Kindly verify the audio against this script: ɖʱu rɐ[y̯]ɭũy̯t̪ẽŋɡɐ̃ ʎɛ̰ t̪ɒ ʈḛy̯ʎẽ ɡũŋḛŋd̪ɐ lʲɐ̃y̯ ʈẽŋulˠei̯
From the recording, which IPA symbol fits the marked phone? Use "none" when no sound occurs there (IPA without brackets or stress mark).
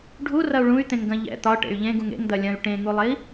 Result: u̯